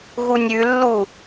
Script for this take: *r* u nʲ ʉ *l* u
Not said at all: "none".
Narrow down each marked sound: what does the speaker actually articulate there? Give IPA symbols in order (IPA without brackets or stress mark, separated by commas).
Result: ɣ, lː